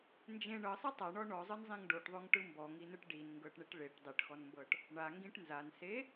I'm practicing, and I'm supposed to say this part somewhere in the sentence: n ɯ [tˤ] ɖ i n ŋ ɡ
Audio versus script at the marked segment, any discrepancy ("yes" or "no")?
yes